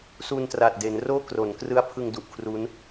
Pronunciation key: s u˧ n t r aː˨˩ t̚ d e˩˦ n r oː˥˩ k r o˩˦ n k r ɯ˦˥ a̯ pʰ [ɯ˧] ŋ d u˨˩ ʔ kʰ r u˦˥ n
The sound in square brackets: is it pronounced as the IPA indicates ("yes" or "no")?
yes